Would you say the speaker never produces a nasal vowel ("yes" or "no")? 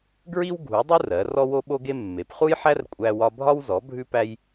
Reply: yes